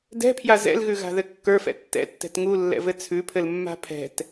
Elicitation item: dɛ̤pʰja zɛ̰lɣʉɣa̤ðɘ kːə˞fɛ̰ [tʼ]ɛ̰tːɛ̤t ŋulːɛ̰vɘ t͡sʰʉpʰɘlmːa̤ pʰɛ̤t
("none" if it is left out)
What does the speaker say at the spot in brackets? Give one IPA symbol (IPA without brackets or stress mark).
tː